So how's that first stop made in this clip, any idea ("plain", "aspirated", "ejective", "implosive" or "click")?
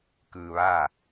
plain